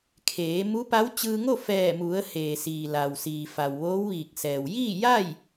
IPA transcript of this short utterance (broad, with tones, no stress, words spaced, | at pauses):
kʰeː˩˧ mu˧˥pa˧˥w t͡ɕɯː˧ŋo˥˨ fɛː˧˩mu˩˧ə̯ heː˩siː˩ la˩wsiː˩ fa˩wʋoː˧˥wʋiː˧˩k̚sɛː˩w jiː˥˨ja˥˨j